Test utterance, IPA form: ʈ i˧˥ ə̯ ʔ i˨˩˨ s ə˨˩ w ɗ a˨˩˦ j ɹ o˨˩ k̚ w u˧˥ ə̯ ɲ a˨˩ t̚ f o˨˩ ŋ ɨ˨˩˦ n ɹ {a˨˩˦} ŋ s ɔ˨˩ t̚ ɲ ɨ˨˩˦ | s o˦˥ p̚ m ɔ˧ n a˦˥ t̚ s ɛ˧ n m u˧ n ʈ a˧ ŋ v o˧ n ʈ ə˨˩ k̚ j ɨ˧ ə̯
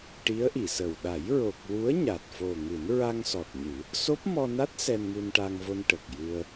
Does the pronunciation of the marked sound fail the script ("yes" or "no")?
yes